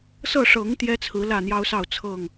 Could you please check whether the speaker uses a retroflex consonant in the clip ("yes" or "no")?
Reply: yes